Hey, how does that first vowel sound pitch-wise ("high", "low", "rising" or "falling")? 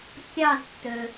falling